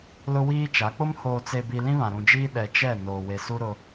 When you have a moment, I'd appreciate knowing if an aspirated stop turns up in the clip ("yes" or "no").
no